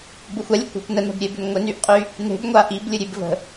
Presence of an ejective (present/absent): present